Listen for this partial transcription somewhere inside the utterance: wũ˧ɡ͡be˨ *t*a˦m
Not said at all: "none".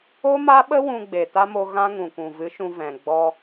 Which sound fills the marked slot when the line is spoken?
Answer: t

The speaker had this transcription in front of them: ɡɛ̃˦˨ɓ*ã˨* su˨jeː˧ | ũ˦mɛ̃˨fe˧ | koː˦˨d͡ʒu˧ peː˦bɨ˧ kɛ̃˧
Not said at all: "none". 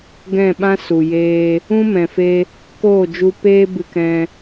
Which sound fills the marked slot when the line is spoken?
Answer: ã˦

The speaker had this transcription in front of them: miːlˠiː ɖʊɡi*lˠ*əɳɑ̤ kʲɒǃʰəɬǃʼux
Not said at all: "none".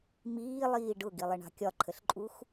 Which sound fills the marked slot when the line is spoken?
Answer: lˠ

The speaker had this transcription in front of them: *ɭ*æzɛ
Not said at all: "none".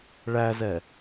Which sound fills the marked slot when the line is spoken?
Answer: ɭ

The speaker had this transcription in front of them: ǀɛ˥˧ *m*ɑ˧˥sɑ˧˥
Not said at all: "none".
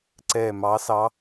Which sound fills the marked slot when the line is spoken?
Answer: m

